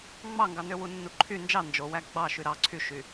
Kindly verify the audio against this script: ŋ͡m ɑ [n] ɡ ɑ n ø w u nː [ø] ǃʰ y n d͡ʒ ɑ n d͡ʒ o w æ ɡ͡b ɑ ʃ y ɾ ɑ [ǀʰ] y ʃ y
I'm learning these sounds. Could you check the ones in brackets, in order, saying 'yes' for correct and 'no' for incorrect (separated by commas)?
no, no, yes